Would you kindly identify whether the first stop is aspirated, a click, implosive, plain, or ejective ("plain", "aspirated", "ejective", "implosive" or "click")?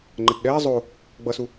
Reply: click